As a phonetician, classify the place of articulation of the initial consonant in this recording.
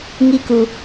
velar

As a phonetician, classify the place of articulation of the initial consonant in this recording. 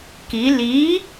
velar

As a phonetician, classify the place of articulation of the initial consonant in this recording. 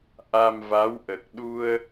glottal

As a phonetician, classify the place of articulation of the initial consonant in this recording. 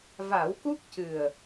labial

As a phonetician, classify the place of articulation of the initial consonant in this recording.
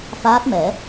labial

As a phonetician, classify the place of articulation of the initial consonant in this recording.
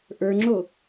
glottal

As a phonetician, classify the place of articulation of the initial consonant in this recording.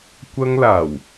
velar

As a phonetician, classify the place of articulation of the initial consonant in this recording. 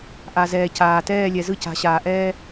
glottal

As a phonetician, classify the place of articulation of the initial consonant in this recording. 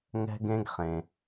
velar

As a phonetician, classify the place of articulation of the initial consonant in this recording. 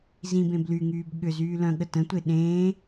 alveolar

